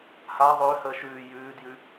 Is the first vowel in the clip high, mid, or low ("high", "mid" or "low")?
low